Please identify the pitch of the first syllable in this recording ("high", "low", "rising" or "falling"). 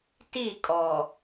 falling